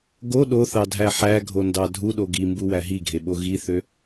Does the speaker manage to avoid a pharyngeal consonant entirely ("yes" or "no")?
no